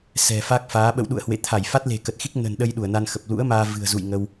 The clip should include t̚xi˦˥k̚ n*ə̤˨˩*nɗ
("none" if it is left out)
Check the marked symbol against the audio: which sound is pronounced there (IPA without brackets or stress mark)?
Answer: ə̤˨˩